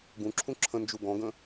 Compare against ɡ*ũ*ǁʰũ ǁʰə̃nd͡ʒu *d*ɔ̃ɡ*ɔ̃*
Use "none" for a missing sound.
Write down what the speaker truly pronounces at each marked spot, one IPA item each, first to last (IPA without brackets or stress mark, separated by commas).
ũ, ɡ, ə̃